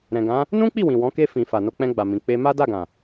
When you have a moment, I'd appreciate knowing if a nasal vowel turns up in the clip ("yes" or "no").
yes